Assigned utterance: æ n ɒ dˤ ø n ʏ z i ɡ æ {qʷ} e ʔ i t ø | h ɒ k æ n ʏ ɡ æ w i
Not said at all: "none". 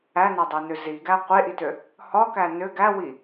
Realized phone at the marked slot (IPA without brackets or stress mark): qʷ